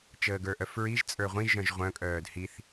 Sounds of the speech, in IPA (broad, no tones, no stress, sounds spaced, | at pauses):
t͡ʃ əː ɡ ə˞ ʔ œ f ɹ i ʒ t͡sʼ ə˞ ʁʷ ĩ ʒ œ̃ ʒ ʁʷ œ̃ kʼ œː d h i θ